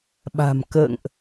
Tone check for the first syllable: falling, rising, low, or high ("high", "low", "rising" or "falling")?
low